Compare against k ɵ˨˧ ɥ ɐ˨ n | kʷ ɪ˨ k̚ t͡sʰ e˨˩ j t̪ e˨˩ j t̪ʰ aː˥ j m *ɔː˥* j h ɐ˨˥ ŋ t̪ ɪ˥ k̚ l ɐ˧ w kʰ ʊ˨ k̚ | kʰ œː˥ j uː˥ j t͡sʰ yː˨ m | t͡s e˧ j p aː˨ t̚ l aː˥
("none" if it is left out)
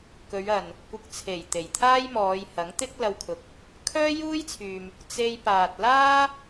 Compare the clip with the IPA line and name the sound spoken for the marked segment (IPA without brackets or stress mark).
ɔː˨˧